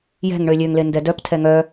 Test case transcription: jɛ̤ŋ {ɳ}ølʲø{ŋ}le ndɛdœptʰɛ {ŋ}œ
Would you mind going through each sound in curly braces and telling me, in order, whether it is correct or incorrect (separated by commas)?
correct, correct, correct